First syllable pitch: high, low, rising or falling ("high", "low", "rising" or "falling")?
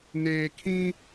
low